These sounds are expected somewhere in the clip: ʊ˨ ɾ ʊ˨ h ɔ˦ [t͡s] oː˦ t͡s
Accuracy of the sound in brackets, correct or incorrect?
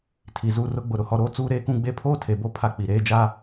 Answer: incorrect